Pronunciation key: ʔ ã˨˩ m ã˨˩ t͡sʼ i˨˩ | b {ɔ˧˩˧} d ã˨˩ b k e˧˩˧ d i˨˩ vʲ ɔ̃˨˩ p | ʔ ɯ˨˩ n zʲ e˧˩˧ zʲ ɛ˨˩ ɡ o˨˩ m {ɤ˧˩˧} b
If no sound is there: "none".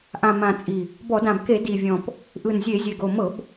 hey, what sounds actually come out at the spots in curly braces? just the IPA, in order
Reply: ɔ˧˩˧, ɤ˧˩˧

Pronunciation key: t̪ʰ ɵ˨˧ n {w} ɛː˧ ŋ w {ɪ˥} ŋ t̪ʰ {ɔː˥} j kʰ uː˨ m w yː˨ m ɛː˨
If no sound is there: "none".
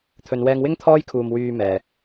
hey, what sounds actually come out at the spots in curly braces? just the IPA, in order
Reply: w, ɪ˥, ɔː˥

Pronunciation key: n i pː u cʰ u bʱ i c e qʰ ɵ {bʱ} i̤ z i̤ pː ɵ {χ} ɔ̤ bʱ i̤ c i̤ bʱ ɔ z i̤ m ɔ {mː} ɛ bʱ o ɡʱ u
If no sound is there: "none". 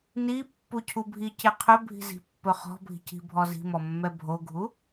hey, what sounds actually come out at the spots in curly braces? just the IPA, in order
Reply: bʱ, χ, mː

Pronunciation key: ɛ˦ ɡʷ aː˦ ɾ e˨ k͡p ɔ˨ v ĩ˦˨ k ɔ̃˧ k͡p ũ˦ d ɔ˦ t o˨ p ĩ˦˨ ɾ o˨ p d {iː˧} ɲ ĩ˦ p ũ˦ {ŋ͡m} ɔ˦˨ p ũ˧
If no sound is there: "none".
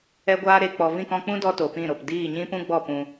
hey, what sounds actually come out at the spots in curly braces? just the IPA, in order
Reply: iː˦˨, ɡ͡b

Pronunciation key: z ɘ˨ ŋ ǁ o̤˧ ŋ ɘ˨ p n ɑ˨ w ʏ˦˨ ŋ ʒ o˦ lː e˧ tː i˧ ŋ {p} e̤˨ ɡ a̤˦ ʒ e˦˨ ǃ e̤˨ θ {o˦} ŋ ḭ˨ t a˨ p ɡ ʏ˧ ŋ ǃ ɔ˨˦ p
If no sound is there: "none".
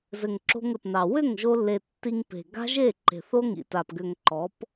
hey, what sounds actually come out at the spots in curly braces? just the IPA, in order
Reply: p, o˦

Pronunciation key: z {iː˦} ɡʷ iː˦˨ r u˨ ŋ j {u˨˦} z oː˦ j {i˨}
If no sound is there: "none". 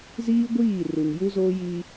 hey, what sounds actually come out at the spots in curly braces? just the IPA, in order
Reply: iː˦, u˦, i˦

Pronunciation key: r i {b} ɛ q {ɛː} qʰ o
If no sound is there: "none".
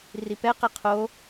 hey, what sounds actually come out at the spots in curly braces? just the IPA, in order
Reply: p, ɛ

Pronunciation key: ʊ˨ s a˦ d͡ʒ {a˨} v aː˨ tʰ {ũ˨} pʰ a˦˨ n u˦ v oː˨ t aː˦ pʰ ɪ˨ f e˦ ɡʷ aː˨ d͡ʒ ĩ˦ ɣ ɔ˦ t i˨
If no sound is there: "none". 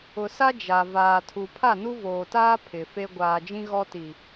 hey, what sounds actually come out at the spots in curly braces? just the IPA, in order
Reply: a˨, u˨

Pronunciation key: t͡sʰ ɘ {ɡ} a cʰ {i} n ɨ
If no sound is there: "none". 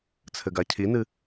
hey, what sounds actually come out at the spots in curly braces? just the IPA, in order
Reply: ɡ, i

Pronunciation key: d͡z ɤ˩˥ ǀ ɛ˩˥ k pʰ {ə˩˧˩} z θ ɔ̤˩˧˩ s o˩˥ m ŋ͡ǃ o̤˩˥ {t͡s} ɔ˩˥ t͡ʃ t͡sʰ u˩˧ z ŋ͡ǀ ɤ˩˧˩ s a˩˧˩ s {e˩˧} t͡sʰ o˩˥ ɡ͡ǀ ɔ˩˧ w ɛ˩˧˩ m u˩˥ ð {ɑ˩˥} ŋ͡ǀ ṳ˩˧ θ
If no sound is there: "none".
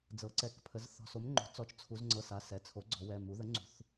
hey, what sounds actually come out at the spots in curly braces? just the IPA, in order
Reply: ə˩˧, t͡s, ɛ˩˧, ə˩˥

